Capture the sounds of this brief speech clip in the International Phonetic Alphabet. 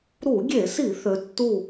ɾu˧˩˧ɡʲe˧˩˧si˧˩˧ θø˨˦tːu˥˨

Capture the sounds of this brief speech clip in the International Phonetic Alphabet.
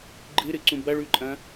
ɡ͡ǃɨɾɨǀũ bɐɭʉǃʼɐ̃

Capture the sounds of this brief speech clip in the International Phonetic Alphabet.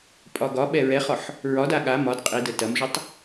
pʼɒɡɒɓɛ ɹɛχɒħ | ɹɒda ɠa mɒd qʼi dətɐmʒətˤ

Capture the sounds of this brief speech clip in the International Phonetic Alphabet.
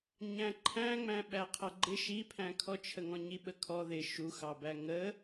ɲæ̃ǃʰæ̃ŋ͡mæ̃ ɓæqʰʌɡ͡ǃɪ ʃipʰæ̃kʰɔt͡ʃʰə ŋɔ̃ɲiɓəkʰɔ ðɪ ʃuxɑbæ ŋə

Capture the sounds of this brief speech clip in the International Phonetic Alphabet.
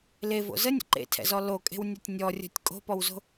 levo̰ zənʲə̰ ǃḛtʰɛ̰zɔ lokʼe̤wnʲɔtʲ nʲɔrʲo̤tʲ kʼo̤pɔwzo̤

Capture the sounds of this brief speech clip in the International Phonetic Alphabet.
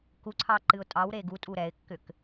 kuǀʰɑ ǃɨʊ̯tʼɑwɾe ɡutʼu ɾɛɪ̯kːʏk

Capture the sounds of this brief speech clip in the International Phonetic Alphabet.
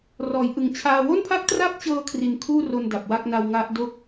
rɔː˩˦jʔɯ˨˩ŋt͡ɕʰaː˧ wo˥˩npʰa˥˩k̚tra˥˩p̚t͡ɕɤː˧ kʰri˧nkʰuː˥˩ro˧n da˨˩p̚wa˥˩k̚na˧w ŋa˦˥ʔ do˥˩k̚

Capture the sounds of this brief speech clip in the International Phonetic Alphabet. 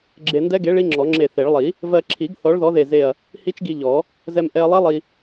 ɡ͡ǁe˧ndɛ˦˥ɡe˨˥ ɭi˦˥ŋ͡ǁɔ˨˩˦ŋ͡ǁe˧˩θe˨˩˦ɭ lˠi˨˩˦ | vɜ˧ǁʰi˨˩˦ɡ θɔ˨˥ɭðɔ˨˥ðe˧˩ze˧˩ɐ̯ | hi˦˥t͡ʃɡi˧ ʎɔ˨˩˦ | zɛ˧mʔɛ˧ɐ̯lˠɛ˦˥ lˠi˧

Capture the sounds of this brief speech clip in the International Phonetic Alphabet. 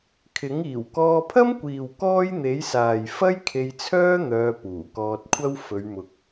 kʰɪ˨˥ŋ iː˨˩wkɔː˧pʰɐ˥mkʷiː˨w kɔː˥jn̪e˨˥jsaː˨j fɐ˥jkʰe˧jt͡sʰœː˥ n̪œː˧puː˨˩kɔː˧t̚kʷʰɐ˥w fɵ˨˧ɥmʊ˨k̚

